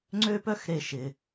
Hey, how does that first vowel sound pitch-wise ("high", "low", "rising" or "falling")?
high